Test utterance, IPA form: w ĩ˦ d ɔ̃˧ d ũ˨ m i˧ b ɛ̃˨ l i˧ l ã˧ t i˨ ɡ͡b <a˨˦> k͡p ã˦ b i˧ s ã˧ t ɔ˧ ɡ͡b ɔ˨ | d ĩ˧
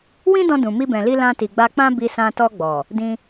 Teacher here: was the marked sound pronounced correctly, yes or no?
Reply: no